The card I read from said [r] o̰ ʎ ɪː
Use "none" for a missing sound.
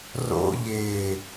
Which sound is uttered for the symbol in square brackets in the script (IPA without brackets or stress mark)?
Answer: r